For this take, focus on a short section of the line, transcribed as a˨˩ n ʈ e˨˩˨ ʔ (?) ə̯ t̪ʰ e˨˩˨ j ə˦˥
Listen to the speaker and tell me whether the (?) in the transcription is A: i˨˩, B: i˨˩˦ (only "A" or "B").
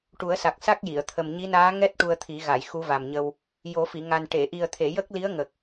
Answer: A